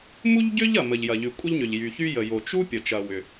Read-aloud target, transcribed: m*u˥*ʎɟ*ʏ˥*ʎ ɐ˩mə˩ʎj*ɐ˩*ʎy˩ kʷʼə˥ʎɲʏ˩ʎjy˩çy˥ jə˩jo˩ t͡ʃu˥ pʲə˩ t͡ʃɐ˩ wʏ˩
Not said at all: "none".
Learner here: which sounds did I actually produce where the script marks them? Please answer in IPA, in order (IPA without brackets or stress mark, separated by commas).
u˥, ʏ˥, ɐ˩